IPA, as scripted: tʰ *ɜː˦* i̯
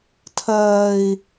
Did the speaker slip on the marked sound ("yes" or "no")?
no